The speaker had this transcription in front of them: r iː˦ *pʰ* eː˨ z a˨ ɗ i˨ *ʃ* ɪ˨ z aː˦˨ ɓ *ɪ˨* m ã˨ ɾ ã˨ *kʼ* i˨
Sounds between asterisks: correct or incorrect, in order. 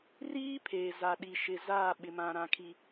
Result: correct, correct, correct, incorrect: kʰ

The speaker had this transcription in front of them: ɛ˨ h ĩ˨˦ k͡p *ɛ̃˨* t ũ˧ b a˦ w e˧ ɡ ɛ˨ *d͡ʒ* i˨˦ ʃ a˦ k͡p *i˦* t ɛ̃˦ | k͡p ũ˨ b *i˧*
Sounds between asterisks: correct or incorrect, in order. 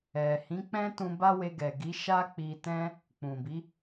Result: incorrect: ɛ̃˦, incorrect: ɡ, incorrect: i˧, incorrect: i˨˦

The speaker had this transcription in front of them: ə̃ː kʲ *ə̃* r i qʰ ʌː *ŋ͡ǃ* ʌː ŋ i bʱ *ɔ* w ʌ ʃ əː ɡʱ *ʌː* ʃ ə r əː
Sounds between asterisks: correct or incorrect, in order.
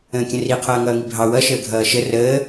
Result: correct, incorrect: ŋ, incorrect: ɑ, correct

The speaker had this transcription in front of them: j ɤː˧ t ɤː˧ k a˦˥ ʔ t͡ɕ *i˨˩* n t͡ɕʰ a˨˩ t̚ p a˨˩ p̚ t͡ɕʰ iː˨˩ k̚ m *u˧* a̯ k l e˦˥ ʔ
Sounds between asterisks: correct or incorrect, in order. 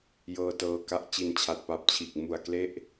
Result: correct, incorrect: u˨˩

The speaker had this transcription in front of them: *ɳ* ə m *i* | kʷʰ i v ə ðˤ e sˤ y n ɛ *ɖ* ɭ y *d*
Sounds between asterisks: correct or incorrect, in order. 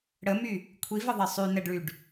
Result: incorrect: ɽ, incorrect: y, correct, incorrect: ɖ

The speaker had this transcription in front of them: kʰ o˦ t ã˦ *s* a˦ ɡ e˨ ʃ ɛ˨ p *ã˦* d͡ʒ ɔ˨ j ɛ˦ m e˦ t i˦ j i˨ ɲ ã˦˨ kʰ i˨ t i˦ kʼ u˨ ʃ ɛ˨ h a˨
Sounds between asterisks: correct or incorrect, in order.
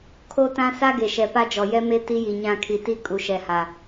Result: correct, incorrect: a˦

